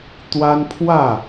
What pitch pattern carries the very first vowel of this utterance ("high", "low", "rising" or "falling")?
high